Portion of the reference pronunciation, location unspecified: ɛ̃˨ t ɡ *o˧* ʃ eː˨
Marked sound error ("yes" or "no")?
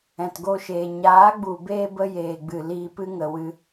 no